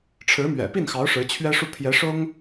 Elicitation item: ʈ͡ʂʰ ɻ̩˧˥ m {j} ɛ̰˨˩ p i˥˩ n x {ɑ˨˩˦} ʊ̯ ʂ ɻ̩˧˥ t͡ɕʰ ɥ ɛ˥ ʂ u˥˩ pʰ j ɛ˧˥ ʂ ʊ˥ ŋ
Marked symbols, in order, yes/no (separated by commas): no, no